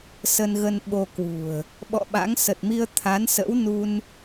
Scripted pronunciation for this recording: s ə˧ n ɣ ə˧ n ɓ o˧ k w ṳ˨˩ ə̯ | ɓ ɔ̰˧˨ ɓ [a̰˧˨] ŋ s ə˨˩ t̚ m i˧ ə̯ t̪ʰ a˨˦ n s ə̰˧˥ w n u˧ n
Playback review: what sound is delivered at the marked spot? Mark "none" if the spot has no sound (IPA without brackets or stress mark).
a̰˧˥